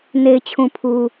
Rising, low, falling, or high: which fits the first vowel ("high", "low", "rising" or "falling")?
low